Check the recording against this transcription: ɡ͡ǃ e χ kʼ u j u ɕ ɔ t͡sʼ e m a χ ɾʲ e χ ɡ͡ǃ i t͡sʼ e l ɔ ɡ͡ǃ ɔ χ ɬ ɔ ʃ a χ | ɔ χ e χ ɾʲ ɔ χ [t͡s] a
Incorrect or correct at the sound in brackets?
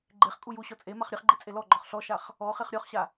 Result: incorrect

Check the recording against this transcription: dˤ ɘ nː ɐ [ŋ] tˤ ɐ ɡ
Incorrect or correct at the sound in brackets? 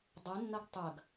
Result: incorrect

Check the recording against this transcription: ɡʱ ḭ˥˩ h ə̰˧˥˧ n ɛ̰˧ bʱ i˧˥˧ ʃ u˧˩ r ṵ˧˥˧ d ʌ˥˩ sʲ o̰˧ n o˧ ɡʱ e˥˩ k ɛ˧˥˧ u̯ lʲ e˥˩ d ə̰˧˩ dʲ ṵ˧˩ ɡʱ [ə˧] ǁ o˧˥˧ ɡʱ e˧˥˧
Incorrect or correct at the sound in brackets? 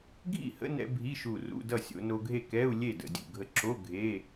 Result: correct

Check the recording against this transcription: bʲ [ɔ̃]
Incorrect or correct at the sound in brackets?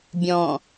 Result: correct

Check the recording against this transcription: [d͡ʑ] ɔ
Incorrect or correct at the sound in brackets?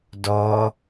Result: incorrect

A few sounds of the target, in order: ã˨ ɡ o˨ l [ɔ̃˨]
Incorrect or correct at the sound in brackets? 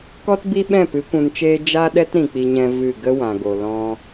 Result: incorrect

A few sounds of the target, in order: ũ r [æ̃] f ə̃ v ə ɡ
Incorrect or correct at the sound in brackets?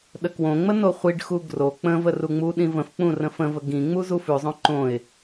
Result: incorrect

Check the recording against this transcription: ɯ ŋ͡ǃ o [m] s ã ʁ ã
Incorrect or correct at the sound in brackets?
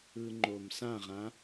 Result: correct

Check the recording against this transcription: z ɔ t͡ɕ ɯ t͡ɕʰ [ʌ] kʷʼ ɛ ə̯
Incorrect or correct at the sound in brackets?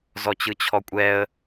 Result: incorrect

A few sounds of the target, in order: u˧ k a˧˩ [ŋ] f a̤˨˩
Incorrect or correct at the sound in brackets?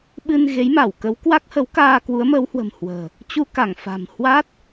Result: correct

